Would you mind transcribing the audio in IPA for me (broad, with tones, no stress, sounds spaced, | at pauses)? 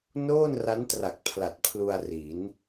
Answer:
n oː˥˩ n r a˦˥ n t r a˨˩ k̚ pʰ l a˨˩ t̚ pʰ l u˧ a̯ r i˩˦ n